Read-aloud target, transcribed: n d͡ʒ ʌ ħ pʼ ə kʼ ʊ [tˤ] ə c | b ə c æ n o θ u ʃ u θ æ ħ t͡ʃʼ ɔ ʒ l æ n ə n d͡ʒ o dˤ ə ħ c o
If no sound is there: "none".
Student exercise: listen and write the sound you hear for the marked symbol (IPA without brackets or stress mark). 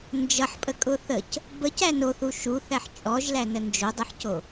θ